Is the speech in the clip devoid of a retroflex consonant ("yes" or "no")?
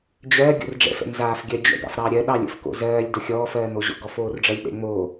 no